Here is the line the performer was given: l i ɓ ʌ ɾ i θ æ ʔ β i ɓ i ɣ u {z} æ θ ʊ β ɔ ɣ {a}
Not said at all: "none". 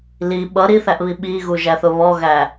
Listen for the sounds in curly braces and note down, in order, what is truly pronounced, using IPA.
ʒ, æ

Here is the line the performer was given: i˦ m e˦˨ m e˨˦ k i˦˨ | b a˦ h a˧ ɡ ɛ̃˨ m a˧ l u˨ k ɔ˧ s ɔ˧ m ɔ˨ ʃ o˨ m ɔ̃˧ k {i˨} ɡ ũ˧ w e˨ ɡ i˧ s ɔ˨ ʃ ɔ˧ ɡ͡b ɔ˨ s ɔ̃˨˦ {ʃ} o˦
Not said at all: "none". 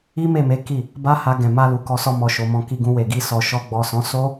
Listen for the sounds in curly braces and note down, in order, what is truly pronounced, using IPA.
i˧, s

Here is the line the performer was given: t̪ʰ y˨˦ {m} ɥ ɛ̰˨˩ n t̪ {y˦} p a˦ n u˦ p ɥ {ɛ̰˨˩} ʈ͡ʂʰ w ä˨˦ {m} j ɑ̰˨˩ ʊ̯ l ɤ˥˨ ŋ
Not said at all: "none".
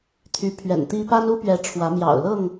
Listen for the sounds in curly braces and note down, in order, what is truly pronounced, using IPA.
pʰ, i˦, ɛ˨˦, m

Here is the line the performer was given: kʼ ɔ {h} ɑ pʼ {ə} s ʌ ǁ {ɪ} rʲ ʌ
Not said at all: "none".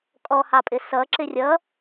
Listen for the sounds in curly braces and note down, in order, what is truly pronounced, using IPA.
h, ɪ, ɪ

